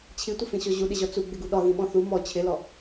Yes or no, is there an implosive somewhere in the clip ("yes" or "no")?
yes